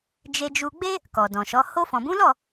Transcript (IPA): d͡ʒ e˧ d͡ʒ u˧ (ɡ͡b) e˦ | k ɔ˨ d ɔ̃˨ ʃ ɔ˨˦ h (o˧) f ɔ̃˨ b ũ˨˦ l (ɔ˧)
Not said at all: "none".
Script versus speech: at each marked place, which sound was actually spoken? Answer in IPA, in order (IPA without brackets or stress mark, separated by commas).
ɡ͡b, o˧, ɔ˦˨